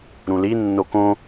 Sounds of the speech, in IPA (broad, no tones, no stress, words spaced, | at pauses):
ɾũli nːokõ